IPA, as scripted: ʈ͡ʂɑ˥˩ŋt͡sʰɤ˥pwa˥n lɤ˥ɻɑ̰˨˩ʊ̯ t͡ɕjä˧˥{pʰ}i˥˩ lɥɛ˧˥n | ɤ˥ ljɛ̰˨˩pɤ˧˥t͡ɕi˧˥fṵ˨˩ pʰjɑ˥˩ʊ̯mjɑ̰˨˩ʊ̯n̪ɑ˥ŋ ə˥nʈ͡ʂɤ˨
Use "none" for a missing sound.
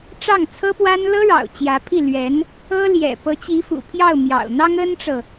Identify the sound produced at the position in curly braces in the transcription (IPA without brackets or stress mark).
pʰ